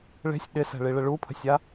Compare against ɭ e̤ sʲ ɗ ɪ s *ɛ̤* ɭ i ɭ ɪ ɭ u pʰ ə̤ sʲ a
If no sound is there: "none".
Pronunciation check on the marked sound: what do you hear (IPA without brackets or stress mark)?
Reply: ɛ̤